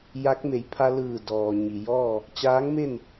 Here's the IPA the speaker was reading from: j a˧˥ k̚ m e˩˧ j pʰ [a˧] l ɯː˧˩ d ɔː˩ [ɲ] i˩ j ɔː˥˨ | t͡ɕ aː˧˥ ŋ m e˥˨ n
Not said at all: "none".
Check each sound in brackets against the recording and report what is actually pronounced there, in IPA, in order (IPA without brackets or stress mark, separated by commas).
a˧, ɲ